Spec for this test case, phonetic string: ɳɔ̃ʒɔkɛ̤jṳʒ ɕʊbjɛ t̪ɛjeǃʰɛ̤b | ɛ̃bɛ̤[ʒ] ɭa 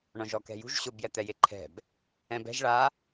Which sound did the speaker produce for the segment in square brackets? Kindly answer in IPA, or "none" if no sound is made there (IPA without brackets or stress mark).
ʒ